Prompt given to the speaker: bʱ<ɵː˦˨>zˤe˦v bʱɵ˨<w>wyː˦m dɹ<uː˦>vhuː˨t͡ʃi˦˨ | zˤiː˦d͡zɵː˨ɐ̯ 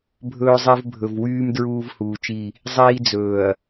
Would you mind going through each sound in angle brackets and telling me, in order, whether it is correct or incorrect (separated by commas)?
incorrect, incorrect, correct